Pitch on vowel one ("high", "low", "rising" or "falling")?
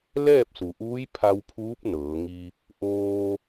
falling